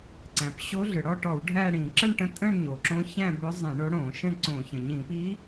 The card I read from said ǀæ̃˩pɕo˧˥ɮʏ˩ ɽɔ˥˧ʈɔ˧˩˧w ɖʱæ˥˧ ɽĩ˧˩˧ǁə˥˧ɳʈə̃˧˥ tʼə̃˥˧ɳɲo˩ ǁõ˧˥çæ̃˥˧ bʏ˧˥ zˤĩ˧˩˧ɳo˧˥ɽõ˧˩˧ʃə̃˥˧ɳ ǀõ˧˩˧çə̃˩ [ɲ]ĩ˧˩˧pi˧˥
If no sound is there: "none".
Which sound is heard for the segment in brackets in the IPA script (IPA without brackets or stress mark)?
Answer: ɲ